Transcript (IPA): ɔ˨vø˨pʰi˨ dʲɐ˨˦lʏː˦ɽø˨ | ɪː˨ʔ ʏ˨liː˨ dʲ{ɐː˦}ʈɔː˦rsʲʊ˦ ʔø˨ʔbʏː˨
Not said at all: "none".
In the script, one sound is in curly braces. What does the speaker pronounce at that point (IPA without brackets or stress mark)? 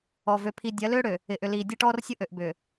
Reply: ɐ˦